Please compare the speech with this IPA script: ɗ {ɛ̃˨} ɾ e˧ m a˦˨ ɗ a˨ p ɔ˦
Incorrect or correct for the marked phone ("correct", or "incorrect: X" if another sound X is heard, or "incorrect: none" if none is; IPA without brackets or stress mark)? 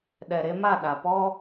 incorrect: ɛ˨